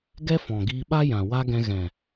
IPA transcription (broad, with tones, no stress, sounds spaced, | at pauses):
ɡ ɛ˦ f ɔ̃˨ ɡ iː˧ ɓ a˦ j ã˨ w a˦ ɡ ɛ̃˧ ɣ ɛ̃˨